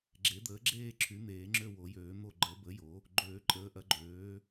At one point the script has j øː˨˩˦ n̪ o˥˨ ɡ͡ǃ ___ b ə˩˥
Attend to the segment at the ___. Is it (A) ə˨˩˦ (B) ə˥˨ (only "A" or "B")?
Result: A